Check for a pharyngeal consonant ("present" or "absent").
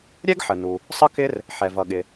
present